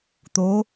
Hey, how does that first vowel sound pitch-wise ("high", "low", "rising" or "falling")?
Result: rising